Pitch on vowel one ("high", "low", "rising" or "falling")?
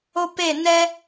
high